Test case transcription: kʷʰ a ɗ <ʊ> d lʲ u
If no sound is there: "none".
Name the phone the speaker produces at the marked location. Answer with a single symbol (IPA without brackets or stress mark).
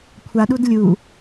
u